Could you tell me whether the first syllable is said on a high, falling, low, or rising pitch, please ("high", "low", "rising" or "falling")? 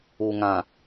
low